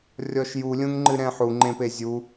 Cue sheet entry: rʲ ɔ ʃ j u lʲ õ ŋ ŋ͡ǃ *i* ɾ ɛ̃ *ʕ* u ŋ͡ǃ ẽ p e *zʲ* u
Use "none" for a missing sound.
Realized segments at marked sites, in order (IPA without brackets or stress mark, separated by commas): ɨ, ħ, zʲ